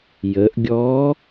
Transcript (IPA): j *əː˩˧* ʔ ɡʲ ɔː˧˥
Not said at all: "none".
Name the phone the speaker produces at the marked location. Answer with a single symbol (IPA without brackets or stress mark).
əː˩˧